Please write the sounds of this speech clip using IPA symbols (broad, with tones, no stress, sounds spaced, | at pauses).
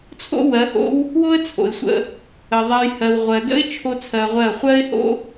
t͡sʰ o̰˦ w ɜ˨˦ h o̰˦ w | w o˦ ə̯ t͡sʰ o̰˨ ɪ̯ sʷ ə̰˧ | ə˨ ðˤ a˧ j h ɜ˨ w ʁʷ ɜ˨ d ə̰˦ ɪ̯ t͡ʃʰ o˦ t͡sʰ ɜ˧ ʁʷ ɜ˦˨ χʷ ɜ˦ ɪ̯ h o̰˦